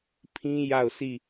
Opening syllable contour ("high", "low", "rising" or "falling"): high